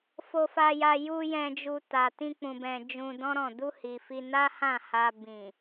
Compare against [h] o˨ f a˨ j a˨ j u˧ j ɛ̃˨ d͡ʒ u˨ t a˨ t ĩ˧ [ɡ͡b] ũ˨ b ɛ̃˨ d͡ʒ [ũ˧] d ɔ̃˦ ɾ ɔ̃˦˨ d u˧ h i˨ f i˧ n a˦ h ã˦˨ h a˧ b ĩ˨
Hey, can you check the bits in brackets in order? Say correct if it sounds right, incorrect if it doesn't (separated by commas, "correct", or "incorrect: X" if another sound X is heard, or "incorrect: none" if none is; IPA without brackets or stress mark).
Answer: incorrect: f, incorrect: k͡p, correct